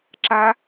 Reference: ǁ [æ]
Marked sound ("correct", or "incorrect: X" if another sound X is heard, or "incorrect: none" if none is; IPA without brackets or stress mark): incorrect: a